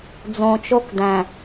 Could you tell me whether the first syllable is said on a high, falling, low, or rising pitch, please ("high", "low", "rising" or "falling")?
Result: low